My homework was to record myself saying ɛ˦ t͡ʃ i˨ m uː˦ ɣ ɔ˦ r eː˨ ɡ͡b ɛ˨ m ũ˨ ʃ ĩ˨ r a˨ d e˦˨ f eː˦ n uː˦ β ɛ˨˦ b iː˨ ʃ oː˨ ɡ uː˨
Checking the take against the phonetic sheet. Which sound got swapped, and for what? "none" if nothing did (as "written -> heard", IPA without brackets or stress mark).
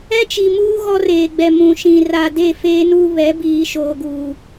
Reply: none